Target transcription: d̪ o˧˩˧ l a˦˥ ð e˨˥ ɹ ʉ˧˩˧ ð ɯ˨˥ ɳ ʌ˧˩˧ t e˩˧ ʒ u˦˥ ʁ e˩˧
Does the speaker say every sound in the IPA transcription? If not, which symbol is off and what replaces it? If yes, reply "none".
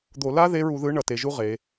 ʉ˧˩˧ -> u˧˩˧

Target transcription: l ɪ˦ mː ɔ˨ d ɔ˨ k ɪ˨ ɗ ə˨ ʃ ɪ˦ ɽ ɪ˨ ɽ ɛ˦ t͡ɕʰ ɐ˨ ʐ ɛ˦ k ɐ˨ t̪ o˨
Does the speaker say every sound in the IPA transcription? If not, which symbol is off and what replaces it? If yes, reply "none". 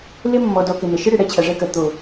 ɗ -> n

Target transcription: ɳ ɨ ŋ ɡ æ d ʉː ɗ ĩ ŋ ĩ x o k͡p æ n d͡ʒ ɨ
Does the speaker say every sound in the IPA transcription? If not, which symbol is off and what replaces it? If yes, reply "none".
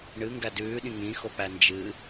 none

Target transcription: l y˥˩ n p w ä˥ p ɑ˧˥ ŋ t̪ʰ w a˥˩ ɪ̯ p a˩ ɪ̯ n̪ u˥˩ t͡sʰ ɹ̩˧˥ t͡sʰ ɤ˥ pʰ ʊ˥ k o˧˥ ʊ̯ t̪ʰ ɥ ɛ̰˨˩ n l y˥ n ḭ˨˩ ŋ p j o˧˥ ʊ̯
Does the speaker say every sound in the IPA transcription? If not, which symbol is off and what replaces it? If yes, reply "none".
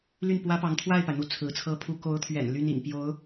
ʊ˥ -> u˥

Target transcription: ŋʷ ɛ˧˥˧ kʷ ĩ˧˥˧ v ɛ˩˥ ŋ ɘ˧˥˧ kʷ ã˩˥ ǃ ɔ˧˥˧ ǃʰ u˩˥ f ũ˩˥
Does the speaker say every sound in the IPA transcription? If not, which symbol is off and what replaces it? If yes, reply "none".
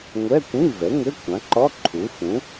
none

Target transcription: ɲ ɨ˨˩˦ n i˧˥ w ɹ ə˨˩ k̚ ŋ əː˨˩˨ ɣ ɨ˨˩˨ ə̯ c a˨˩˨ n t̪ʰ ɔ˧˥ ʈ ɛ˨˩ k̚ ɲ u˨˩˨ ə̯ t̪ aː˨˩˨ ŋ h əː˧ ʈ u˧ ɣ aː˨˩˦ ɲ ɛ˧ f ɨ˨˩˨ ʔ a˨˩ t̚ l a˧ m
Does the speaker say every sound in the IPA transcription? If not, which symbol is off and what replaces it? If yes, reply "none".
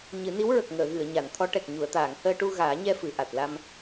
c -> ɲ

